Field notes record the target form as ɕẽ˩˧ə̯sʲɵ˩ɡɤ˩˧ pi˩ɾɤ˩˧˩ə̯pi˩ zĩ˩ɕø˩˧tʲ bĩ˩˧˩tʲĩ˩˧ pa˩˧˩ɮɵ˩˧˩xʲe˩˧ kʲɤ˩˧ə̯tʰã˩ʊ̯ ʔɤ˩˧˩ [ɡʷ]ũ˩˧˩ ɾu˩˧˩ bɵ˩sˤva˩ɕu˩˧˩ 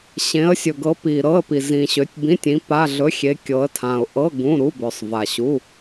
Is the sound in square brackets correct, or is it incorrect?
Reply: incorrect: ɡ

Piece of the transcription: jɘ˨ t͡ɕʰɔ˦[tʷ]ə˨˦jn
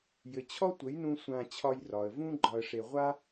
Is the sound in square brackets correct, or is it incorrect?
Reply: correct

